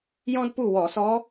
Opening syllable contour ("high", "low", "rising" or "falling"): high